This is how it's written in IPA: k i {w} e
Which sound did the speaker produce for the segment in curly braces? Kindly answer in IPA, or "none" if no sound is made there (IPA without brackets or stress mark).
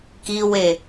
w